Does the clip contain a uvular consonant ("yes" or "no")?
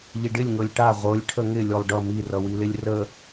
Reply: yes